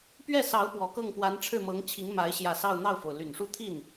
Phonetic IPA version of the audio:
p ɥ ɛ˥˩ s ɑ˧˥ ʊ̯ p w ɔ˨˩ k ɤ˥˩ ŋ p w a˧˥ n ʈ͡ʂʰ ɻ̩˥˩ m ɤ˧˥ ŋ t͡ɕʰ i˧˥ ŋ m a˧˥ ɪ̯ ɕ j ä˥˧ s ɑ˥˧ ʊ̯ n̪ ɑ˥˩ ʊ̯ f o˩ ʊ̯ l y˨˩ n ʂ u˥˧ t̪ʰ i˥˩ n

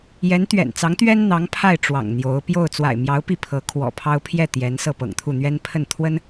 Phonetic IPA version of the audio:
j ɛ˧˥ n t̪ ɥ ɛ̰˨˩ n t͡s ɑ˧˥ ŋ t̪ ɥ ɛ˥ n n̪ ɑ˧˥ ŋ pʰ a˥˩ ɪ̯ ʈ͡ʂ w ɑ̰˨˩ ŋ n̪ j o˧˥ ʊ̯ p j o˥˩ ʊ̯ t͡s w a̰˨˩ ɪ̯ m j ɑ˧˥ ʊ̯ p i˥˩ pʰ ɤ˧˥ kʰ w ɔ̰˨˩ pʰ ɑ˥ ʊ̯ pʰ j ɛ˥˩ t̪ j ɛ˧˥ n s ɤ˥˩ p ɤ̰˨˩ ŋ t̪ʰ u˥˩ n̪ ɥ ɛ˥ n pʰ ə˥˩ n t̪ʰ w ə˥ n

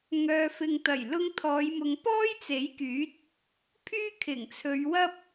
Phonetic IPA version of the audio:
ŋ œː˧ f ɪ˨ ŋ t̪ ɐ˨˩ j l ʊ˧ ŋ t̪ʰ ɔː˨˧ j m ʊ˨ ŋ p ɔː˥ j t͡s e˨˥ j k yː˨˥ t̚ | pʰ yː˥ kʰ ɪ˨˩ ŋ t͡sʰ ɵ˨˧ ɥ w ɐ˥ p̚

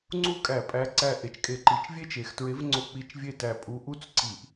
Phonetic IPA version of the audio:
ŋ͡ǀ u˥ kʼ æ˧˩˧ pʼ æ˨˥ ǀ æ˧˩ ʔ e˩˧ t͡ʃ kʼ e˧˩˧ ǃ i˩˧ t͡ʃ vʲ e˥ t͡ʃ e˩˧ x t ɹ e˨˥ v ŋ͡ǀ o˧˩ k͡p i˧˩˧ t͡ʃ vʲ e˥˩ t æ˧˩ pʼ u˨˥ ʔ u˥ t͡s ǀ i˧˩˧ ʔ

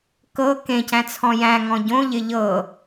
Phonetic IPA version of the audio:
k ɤ k ẽ c æ̃ t͡sʰ ɔ̃ j æ̃ ŋ ɔ̃ ɟ õ ʎ ɪ ʎ ɤ

